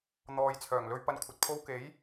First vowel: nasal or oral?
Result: oral